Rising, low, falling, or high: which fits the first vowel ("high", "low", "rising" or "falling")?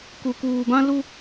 low